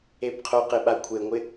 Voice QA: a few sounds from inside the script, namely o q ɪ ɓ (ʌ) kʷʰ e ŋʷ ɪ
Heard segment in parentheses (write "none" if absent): a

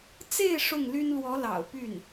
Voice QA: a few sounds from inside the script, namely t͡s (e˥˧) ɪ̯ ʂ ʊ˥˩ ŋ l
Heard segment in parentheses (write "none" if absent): e˥˧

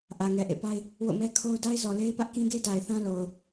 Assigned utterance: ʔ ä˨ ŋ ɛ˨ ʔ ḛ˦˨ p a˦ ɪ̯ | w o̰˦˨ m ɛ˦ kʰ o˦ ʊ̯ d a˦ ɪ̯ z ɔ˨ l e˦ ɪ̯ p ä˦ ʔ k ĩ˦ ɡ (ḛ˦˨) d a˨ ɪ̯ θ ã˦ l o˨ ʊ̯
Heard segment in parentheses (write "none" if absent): e˦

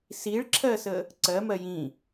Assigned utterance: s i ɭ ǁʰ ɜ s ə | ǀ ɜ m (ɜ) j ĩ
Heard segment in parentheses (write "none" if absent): ɜ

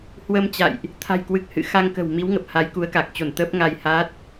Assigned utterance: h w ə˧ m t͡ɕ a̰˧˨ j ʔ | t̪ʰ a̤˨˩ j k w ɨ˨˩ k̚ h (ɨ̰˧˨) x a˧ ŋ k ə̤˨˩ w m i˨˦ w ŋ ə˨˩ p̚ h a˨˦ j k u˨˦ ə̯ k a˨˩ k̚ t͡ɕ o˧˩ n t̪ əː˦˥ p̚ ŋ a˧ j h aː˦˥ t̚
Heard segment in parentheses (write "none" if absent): ɨ̰˧˨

